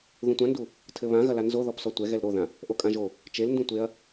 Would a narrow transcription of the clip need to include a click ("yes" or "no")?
no